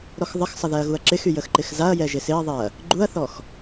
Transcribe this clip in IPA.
ɾ ɔ x ðˤ ə x sˤ ə ð ɛ ɐ̯ ɣ u ɐ̯ ǁ ɪ x y j ə x ǃ ɪ x z a ɐ̯ j ɛ ʒ ɪ s ɪ ɐ̯ ðˤ ɪ ɐ̯ | ɡ͡ǃ u ɐ̯ θ ɔ x

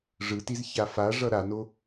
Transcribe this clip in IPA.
ʐ ɯ t i z ç a f a ʐ ʌ ɾ a n o

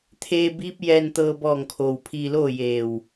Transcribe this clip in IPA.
t̪ʰ eː˧ b iː˧˥ p̚ j ɛː˧ n t̪ ɤː˧ b ɔː˧˩ ŋ kʰ oː˩ w pʰ iː˧ l oː˥˨ j eː˧˩ w

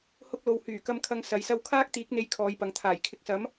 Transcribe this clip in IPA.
h ʊ˧ k̚ l o˨ w h yː˨˩ k ɐ˧ m kʰ ɐ˧ ŋ s ɐ˨˧ j s ɐ˥ w kʰ aː˥ k̚ t̪ iː˨˥ k̚ n̪ e˨˧ j kʰ ɔː˨˧ j p ɐ˨˧ ŋ t̪ʰ aː˨˩ j kʰ ɪ˨˥ k̚ s ɐ˨˥ m

